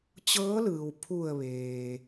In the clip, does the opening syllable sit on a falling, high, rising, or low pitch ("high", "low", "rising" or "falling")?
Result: rising